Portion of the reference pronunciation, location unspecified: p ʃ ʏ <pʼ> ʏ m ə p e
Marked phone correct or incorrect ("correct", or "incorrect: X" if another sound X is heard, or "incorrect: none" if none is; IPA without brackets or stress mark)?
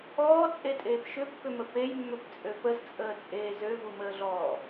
incorrect: pː